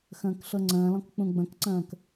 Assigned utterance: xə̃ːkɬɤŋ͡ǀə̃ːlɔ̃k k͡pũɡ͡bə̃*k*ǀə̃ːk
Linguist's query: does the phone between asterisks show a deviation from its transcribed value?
no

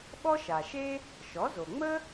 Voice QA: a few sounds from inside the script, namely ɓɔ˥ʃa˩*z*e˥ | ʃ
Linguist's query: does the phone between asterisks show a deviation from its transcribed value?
yes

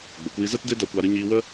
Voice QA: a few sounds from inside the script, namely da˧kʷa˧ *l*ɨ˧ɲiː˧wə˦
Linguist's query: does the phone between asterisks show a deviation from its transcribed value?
yes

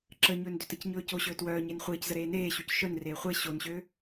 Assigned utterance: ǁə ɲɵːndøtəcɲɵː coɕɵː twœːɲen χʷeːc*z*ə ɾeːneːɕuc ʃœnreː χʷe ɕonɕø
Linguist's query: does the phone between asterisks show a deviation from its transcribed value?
no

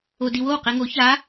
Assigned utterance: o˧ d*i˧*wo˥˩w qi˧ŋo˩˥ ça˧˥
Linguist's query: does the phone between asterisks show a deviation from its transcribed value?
no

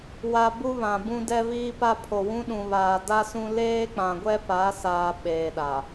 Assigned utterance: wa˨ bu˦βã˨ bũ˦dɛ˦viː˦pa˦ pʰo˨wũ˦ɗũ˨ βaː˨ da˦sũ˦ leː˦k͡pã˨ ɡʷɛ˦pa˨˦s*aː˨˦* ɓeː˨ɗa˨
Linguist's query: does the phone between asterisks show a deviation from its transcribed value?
yes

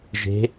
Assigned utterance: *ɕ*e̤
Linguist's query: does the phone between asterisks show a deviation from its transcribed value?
yes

